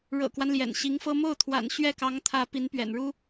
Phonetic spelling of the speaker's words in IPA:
ɻɤ̰˨˩kwa˦n ljɛ̰˨˩nɕi˧˥ŋfɤ˥ mo˥˩ʊ̯t̪ʰwa̰˨˩n ɕɥɛ˥˩kɑ˧˥ŋt̪ʰä˧˥ pi˧˥npɥɛ̰˨˩nɻu˥

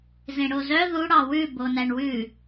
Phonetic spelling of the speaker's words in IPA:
zẽɽozœ ðu ɽɑwʉ bonæɳwʉ

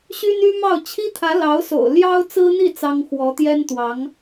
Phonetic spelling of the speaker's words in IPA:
ɕy˥ny˥mɑ˥˩ʊ̯ t͡ɕʰi˥t̪ʰä˧˥lɑ˧˥ʊ̯so̰˨˩ʊ̯ ljɑ˥ʊ̯t͡sɹ̩˥n̪i˥˩ t͡sɑ˥ŋ xwɔ˧˥t̪jɛ˥nt̪wɑ˧˥ŋ

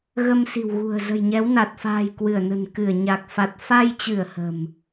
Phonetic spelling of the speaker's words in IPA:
ɣə˧msi̤˨˩wɣṳ˨˩ə̯ zə̤˨˩jɲɛ˨˦wna˨˩t̚fa̤ː˨˩j kwɨ˧˩ə̯nə̤˨˩n kɨ˧˩ə̯ ɲa˨˩k̚fa˨˩t̚ fa˧jt͡ɕɨ˧˩ə̯ hə̤˨˩m

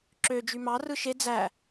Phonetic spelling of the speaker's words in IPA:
ǁø d͡ʒymɑ rɯʃe d͡zæ

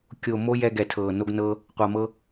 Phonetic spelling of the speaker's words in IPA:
kʲo˨ mo˦ jɛ˧ɡɛ˨ tʰɤː˨ no˧ɡnɤː˧ | qʷa˨mɤ˧

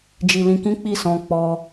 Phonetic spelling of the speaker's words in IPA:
d͡ʒi˧lĩ˧ kĩ˦k͡pi˦˨sɔ̃˧ k͡pɔ˧

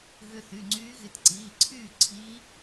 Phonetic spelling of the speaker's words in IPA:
ɣʏ˧ θy˩˧˩ŋ͡ǀyː˧˥ɣɪ˧t ǀiː˩˧˩ǀʰyː˥˨ ǀʰiː˧˥

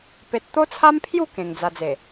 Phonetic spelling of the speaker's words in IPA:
pe˦t̚ t̪o˦t͡sʰa˦mpʰju˥˧ kẽ˧ŋd͡za˧d͡ze˨˩

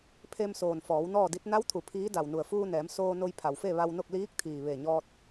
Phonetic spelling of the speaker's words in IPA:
pʰe˧msoː˩n fɔː˩˧w nɔː˥˨di˧˥t̚ na˧˥wt̪ʰu˩ pʰiː˧˥ da˩wnu˩ə̯fuː˧ nɛː˩˧msoː˧no˧j pʰa˩wfe˥˨ ʋa˧wno˥˨k̚ liː˧˥k̚t̪ʰiː˩ ʋe˧˩ɲɔː˧t̚

